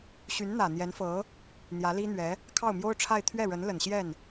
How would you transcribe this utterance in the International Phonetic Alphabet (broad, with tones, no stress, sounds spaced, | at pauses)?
ɕ y˧˥ n n̪ ä˨˩ n̪ j ɛ˧˥ n f ɤ˧˥ | n̪ j ä˧˥ l i˥ n̪ ɥ ɛ˧˥ | kʰ ɑ˥˩ ʊ̯ m j o˥ ʊ̯ ʈ͡ʂʰ a˥˧ ɪ̯ t̪ʰ ɥ ɛ˥˩ ɻ ə˧˥ n l ə˨˩ n ɕ j ɛ˥˩ n